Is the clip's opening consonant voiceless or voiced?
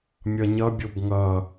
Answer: voiced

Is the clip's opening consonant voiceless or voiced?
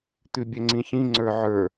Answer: voiceless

